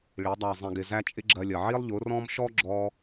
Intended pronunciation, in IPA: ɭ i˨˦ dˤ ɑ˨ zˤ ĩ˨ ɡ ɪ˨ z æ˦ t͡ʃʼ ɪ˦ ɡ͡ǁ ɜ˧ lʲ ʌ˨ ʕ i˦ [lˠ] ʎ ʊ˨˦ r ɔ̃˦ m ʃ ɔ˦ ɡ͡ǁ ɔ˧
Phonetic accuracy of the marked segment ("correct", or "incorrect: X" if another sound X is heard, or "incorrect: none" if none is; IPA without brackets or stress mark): correct